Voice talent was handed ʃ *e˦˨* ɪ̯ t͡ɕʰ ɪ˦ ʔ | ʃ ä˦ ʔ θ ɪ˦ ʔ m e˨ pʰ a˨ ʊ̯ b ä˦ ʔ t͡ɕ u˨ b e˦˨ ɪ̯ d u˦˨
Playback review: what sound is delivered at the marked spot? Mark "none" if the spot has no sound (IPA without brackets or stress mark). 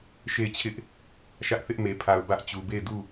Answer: e˦˨